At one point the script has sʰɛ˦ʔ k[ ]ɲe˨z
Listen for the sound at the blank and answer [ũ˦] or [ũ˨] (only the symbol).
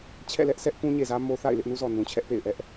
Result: ũ˦